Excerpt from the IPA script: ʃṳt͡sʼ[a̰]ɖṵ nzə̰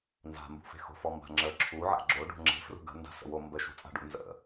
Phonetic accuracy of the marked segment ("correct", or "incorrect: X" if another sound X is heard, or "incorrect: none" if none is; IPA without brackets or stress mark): incorrect: a̤